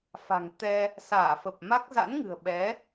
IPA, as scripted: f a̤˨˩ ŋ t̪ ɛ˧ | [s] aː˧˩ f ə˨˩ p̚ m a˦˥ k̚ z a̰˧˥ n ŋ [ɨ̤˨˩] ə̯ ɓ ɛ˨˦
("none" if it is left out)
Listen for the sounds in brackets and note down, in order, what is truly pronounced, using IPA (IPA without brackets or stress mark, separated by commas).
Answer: s, ɨ̤˨˩